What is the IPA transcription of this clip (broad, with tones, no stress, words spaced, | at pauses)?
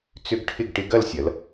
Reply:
t͡sʏ˧ɡ ʈʰɪ˥˧ɡ ʈɪ˧ɡɐ˥˧lsʲɐ˩˧l